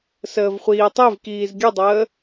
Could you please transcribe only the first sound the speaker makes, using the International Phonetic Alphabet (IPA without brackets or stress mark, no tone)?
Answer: s